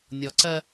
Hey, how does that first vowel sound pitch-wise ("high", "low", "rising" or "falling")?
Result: low